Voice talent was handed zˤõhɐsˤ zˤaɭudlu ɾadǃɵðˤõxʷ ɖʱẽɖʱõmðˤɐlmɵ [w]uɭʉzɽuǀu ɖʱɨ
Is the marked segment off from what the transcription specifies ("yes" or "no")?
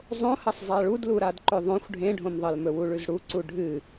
no